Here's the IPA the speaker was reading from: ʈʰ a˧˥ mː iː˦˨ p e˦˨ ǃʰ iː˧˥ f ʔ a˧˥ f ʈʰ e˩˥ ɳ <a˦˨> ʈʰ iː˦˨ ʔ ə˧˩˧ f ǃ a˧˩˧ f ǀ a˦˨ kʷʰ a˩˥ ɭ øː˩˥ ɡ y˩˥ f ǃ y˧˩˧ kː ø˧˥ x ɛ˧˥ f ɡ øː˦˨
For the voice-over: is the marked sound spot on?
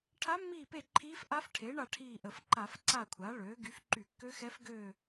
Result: yes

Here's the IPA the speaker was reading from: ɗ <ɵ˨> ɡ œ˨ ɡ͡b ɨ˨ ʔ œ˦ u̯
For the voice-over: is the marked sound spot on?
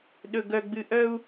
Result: yes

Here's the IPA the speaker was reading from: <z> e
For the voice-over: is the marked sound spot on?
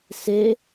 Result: no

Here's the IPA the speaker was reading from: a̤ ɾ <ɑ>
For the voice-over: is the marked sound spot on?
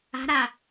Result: no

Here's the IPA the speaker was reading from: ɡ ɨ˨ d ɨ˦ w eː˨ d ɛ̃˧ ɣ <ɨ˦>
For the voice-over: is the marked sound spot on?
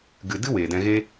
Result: no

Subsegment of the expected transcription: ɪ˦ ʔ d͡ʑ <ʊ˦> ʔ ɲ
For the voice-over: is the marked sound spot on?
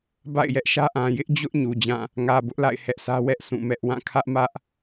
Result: yes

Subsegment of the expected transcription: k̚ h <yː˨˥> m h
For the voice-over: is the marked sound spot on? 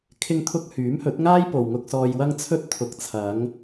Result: yes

